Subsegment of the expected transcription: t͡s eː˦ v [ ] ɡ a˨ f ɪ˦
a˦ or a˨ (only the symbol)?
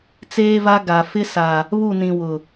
a˦